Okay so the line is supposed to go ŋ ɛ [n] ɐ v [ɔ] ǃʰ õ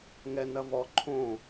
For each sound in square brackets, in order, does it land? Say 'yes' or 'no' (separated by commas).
yes, yes